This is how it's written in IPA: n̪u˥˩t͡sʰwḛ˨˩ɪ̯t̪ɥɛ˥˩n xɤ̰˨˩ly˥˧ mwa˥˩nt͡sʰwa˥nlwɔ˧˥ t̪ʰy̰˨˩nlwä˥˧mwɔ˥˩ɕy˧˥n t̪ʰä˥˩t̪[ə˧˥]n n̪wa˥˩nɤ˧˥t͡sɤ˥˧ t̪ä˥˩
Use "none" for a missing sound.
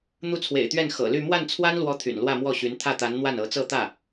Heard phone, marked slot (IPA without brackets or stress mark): a˧˥